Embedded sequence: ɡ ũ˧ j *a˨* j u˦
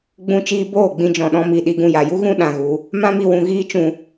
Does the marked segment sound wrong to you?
no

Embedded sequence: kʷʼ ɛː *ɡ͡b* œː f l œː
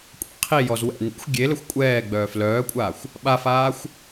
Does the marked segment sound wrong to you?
no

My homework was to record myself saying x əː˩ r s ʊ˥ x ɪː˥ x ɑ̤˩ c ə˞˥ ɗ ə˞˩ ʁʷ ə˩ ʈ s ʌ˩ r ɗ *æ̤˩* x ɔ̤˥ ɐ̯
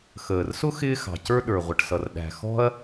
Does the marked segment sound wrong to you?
no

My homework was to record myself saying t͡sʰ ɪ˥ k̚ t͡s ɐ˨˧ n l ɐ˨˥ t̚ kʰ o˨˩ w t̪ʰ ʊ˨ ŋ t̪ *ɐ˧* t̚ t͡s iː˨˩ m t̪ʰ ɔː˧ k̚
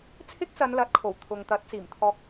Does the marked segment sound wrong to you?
yes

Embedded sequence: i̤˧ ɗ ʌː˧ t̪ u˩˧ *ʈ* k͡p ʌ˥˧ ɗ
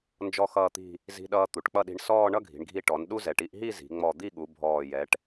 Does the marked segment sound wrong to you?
no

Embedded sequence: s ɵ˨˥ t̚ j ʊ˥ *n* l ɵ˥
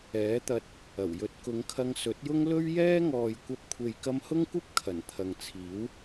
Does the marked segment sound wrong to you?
yes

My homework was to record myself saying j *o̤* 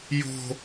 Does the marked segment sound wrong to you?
no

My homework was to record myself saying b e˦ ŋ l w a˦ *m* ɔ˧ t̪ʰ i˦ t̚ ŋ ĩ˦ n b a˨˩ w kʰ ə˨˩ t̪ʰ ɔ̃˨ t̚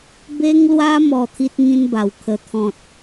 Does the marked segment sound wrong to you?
no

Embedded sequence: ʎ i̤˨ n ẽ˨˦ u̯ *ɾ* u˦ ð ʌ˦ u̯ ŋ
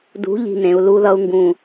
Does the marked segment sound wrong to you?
yes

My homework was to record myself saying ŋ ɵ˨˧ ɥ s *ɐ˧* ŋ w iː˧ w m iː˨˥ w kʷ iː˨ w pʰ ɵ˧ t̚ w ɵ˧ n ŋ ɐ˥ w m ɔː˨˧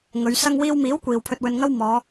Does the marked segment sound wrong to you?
no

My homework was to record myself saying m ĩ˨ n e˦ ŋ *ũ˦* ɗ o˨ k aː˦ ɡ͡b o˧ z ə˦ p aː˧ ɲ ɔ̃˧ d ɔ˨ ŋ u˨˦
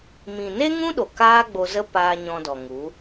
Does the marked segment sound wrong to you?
no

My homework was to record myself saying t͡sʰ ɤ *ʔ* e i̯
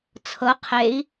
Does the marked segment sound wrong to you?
yes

